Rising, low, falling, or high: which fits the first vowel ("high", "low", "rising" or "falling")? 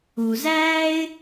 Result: low